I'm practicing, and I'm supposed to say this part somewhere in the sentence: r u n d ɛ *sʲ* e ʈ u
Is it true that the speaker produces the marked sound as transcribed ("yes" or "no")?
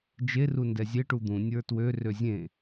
no